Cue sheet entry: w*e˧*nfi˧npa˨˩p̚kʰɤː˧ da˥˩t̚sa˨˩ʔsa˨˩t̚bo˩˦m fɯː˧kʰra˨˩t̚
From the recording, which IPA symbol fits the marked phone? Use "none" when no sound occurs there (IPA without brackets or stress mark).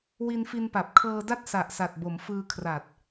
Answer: i˧